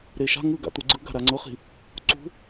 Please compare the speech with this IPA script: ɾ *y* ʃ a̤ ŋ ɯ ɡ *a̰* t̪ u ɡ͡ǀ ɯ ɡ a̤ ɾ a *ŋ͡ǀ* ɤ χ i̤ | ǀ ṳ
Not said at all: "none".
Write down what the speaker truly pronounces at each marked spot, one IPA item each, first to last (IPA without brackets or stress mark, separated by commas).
e, a̰, ŋ͡ǀ